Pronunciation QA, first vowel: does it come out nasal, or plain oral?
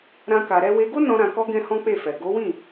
nasal